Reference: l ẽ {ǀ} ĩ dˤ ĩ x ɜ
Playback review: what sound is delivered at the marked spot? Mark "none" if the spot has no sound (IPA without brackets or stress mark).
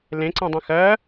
ǀ